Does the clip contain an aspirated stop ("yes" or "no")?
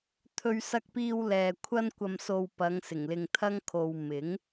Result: yes